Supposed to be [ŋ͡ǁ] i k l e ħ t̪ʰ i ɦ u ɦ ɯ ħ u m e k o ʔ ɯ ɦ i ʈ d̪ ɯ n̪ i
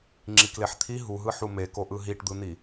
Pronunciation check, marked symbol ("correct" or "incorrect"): correct